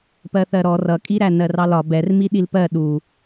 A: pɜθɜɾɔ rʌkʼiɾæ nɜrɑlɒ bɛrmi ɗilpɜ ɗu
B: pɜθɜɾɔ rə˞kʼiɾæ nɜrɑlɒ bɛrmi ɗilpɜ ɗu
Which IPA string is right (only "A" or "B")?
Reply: A